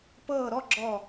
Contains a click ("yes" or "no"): yes